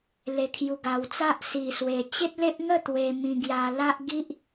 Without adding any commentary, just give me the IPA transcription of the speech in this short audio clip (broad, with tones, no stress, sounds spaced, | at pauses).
l e˨˩ kʰ j u˨˩ ɡ a˨˩ w t͡s a˦ ʔ s i˨˩ s w e˨˩ t͡ɕ e˦ t̚ l e˦ ʔ ŋ ə˥˧ t̪ w e˧ m ĩ˧ ɡ j a˧ l a˦ ʔ ɡ i˦ ʔ